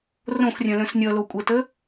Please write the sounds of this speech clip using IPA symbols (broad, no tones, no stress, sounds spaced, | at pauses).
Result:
r õ x rʲ œ̃ l œ̃ s nʲ ʌ l o kʷʼ ə t ə